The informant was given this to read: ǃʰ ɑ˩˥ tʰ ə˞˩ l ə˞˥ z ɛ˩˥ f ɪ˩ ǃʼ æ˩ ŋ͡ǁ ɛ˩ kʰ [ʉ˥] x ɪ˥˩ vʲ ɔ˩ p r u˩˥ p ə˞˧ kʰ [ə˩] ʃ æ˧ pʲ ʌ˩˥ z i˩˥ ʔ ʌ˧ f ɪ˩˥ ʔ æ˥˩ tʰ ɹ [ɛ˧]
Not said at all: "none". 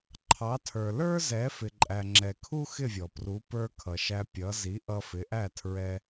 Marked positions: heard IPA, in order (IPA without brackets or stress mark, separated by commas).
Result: u˥, ʌ˩, ɛ˧